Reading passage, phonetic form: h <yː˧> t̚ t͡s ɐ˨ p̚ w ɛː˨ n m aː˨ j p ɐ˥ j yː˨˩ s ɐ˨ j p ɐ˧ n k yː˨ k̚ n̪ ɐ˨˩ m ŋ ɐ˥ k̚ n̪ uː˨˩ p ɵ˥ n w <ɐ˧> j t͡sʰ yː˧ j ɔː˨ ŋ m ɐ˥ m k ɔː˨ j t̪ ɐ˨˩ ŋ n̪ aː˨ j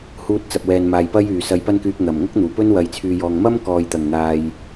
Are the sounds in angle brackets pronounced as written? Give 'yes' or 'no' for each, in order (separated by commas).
no, yes